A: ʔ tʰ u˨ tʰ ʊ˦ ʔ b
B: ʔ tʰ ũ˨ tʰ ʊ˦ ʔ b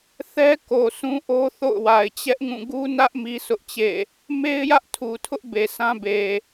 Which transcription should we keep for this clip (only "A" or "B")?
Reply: A